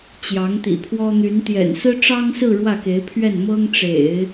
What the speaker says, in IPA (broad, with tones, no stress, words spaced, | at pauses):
t͡ɕjɑ˧˥ŋt̪ḭ˨˩pʰwɔ˥ n̪y˧˥nt̪jɛ̰˨˩n sɹ̩˥ʈ͡ʂɑ˥ŋsɹ̩˥˧ ɻwä˥˩ke˧˥ɪ̯pʰɥɛ˥˩n mɤ˥ŋʈ͡ʂḛ˨˩˦ɪ̯